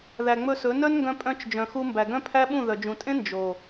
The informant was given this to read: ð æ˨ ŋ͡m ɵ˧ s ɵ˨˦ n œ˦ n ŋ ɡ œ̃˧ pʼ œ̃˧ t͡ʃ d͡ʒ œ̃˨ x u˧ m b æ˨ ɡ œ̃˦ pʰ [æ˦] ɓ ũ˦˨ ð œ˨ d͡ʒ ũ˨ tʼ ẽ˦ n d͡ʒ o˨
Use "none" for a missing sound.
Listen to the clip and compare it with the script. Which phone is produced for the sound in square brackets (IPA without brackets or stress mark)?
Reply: æ˦